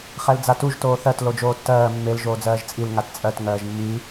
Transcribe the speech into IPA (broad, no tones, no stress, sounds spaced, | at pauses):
χ ɛ l d͡z a t u ʒ t oː θ ɜ t l o d͡ʒ oː tː ɜː mː e l ʒ oː d͡z ɜː ʒ t͡sʼ i l ŋ a t t͡sʼ ɜ t ŋ ɜː ʒ mː i